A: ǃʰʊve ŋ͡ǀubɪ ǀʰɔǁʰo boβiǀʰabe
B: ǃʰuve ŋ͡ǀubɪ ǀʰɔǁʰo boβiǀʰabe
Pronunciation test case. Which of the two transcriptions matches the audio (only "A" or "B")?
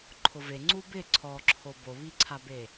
A